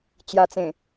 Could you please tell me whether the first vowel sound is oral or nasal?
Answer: oral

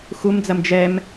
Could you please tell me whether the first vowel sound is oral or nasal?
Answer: oral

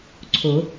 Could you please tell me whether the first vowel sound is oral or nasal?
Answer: oral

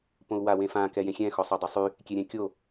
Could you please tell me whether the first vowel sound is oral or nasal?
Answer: nasal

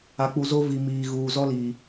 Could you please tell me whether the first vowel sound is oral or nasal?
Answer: oral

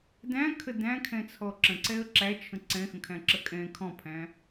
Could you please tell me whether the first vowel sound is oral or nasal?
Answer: nasal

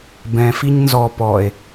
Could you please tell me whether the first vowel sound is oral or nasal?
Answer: nasal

